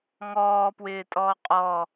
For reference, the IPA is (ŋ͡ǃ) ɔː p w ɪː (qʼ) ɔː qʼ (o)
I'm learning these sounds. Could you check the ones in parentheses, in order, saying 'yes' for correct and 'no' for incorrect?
no, no, no

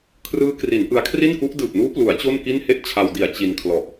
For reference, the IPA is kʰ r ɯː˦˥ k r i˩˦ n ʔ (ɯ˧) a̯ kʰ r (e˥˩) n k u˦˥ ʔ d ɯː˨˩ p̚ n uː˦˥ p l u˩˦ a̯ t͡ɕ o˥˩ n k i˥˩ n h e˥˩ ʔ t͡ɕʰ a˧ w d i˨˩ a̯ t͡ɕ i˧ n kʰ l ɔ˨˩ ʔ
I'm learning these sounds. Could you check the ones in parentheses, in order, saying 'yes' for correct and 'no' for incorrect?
yes, no

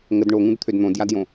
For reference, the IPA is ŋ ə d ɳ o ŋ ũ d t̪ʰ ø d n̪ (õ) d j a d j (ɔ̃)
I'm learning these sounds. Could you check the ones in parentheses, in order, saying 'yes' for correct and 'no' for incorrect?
yes, no

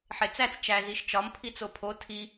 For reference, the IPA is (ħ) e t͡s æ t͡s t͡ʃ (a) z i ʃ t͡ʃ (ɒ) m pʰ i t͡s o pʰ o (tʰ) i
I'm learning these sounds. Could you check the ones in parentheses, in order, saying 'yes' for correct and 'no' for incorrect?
yes, no, yes, yes

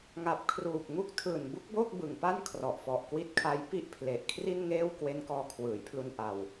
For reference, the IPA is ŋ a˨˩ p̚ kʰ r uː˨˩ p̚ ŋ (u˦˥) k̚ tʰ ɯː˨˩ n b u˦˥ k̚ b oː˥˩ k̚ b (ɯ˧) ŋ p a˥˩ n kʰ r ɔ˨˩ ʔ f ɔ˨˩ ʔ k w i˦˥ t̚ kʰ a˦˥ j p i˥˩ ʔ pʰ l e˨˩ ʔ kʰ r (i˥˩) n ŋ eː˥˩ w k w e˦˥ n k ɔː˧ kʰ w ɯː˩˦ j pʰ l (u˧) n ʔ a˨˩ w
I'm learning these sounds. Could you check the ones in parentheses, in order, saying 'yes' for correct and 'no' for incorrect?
yes, no, yes, yes

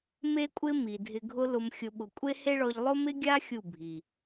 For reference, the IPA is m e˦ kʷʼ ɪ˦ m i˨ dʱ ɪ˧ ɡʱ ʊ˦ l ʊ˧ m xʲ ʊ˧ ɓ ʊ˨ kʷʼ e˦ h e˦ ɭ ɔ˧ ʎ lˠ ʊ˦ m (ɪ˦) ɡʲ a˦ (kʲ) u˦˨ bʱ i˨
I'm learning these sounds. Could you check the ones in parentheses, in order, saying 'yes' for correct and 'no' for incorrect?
yes, no

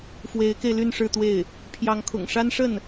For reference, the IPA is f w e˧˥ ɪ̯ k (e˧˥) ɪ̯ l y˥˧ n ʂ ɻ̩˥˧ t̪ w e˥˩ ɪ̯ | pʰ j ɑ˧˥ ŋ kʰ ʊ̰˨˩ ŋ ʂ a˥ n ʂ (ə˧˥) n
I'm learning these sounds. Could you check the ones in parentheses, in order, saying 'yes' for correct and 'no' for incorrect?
no, no

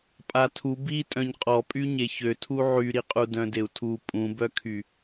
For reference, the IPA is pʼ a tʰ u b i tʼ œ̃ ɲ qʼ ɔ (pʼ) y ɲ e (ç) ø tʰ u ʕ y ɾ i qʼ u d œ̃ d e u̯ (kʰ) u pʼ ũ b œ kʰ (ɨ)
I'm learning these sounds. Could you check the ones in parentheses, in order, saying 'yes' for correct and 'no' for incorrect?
yes, yes, no, no

